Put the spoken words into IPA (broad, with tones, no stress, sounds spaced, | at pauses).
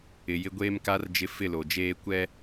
ɪ˨ j ɪ˦ ɡʷ eː˦ m k a˦ r d͡ʒ ɪ˦ f ɪ˦˨ l o˨ d͡ʒ eː˦ kʷ ɛ˦